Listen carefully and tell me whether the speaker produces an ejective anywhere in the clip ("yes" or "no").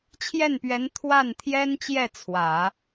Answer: no